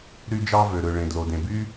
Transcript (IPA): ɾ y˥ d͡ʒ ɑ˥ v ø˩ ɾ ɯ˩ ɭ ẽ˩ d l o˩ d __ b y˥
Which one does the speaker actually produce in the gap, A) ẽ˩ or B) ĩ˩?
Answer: A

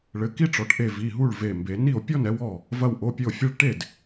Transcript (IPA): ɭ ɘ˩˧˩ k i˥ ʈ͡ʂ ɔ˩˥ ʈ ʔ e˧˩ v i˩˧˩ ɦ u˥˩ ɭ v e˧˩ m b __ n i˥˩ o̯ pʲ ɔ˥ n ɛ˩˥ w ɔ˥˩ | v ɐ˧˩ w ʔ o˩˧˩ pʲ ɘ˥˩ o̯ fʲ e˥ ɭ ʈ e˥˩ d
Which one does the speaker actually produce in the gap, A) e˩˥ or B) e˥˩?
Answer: A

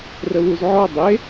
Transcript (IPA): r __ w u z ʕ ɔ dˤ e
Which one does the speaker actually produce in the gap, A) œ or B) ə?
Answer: B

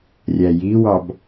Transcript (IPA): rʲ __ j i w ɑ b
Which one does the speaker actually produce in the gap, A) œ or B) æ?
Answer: B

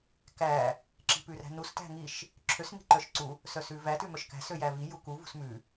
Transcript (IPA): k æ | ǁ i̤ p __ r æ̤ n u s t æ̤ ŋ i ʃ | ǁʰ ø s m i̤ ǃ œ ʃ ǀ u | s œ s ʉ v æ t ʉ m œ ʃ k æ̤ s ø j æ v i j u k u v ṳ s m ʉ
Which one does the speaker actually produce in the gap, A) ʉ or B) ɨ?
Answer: A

